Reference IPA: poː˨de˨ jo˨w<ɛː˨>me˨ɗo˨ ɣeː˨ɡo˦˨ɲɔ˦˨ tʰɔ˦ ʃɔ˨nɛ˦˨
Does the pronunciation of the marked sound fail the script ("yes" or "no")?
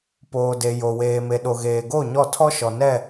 yes